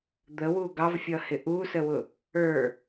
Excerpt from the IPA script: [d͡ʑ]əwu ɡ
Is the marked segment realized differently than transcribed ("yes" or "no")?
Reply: yes